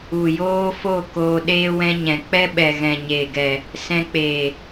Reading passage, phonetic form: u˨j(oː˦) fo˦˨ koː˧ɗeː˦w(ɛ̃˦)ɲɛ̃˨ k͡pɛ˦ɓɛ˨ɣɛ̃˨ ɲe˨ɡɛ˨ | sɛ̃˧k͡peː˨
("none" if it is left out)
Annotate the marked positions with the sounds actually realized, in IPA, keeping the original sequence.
oː˦, ɛ̃˦

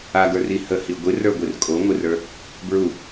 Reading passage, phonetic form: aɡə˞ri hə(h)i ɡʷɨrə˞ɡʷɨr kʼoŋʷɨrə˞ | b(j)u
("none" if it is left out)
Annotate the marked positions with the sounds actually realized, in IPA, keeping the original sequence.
h, ɹ

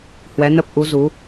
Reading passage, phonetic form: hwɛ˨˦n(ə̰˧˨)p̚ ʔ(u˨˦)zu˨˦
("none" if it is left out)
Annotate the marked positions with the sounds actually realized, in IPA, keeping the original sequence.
ə˦˥, u˨˦

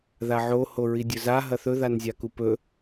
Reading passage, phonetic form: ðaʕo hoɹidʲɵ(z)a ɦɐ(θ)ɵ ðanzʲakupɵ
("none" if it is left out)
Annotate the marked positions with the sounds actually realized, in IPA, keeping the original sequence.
z, θ

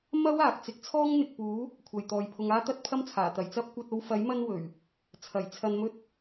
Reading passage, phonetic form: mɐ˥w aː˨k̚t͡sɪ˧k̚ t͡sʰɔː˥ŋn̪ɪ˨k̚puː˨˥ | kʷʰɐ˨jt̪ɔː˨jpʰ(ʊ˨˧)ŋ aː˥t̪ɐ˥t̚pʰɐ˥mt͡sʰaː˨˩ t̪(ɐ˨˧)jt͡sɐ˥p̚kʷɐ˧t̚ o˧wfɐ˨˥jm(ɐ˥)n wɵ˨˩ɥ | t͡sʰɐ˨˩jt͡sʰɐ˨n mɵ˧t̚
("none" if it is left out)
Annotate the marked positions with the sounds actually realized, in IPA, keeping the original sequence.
ʊ˨˧, ɐ˨˩, ɐ˧

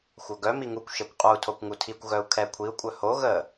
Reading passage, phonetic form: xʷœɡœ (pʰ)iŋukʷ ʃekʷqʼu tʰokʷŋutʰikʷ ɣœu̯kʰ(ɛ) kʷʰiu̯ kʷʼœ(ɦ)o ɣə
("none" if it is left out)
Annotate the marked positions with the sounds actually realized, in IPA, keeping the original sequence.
m, ɛ, h

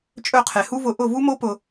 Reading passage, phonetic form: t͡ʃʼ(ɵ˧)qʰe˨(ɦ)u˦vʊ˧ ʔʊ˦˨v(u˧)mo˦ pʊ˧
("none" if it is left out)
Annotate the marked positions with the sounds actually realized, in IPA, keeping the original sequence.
ɵ˦˨, h, u˦

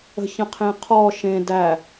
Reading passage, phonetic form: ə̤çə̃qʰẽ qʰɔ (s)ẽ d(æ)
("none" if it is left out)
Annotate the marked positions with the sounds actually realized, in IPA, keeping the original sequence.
ʃ, æ

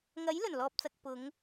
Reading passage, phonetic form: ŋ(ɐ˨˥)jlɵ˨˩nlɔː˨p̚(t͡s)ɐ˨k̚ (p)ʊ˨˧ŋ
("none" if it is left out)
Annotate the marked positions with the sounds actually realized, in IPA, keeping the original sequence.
ɐ˨˥, t͡s, p

